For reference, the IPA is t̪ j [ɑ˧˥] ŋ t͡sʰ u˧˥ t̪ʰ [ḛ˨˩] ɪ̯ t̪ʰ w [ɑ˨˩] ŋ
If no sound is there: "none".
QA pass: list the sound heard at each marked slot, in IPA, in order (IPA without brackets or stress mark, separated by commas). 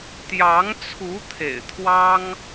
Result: ɑ˧˥, ḛ˨˩, ɑ˥